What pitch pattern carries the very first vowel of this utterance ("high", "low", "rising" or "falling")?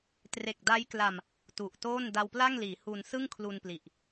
low